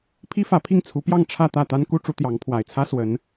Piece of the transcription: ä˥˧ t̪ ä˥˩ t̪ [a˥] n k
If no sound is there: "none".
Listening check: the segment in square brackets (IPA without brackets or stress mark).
a˥